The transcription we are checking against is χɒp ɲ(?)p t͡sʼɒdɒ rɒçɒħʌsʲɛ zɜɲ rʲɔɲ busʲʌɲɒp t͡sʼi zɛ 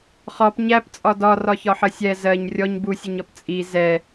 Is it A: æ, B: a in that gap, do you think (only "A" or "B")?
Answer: A